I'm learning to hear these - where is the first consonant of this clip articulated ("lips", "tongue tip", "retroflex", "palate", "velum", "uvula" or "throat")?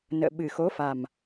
tongue tip